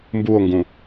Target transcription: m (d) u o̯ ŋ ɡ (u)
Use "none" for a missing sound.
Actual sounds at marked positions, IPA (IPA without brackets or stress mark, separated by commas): b, ũ